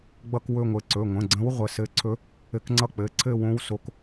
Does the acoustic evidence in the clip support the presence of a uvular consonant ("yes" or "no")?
yes